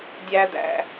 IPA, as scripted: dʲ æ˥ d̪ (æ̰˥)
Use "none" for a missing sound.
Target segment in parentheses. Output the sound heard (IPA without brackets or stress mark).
æ̰˥